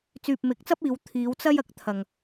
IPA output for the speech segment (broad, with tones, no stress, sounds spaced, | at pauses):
t͡s yː˨ p̚ m ɪ˨˥ k̚ t͡s ɐ˥ p̚ iː˨˧ w t̪ʰ iː˨˧ w t͡s ɐ˥ j ɐ˨˥ k̚ t̪ʰ ɐ˨ ŋ